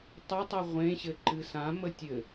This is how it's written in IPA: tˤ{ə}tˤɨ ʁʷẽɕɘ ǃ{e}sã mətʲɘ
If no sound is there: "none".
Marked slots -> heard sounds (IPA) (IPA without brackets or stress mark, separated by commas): ə, ɨ